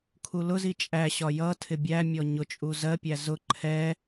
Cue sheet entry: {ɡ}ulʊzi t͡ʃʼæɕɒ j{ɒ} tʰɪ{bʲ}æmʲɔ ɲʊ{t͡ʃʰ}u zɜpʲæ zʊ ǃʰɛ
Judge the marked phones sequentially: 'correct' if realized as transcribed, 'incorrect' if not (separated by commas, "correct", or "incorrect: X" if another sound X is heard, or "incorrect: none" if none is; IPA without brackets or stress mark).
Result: incorrect: kʰ, incorrect: ʌ, correct, incorrect: t͡ʃʼ